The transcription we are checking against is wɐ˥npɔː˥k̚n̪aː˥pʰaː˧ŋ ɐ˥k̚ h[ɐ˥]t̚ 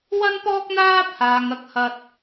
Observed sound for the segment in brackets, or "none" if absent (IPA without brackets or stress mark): ɐ˥